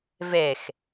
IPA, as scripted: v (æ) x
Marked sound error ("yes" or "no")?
yes